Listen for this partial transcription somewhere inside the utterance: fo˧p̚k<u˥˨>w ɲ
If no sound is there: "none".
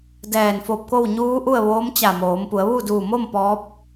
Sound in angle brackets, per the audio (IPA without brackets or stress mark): o˥˨